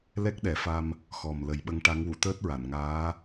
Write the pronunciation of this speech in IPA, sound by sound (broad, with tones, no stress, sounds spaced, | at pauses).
l ɛ˦˥ k̚ ɗ ɛ˨˩˦ f a˧ m | x ɔ˨˩ m l ə˨˩˦ j ɓ ə˧˥ ŋ ʈ a˧˥ ŋ w u˨˩˨ t̪ əː˦˥ t̚ ɹ a˨˩˨ n ŋ aː˧˥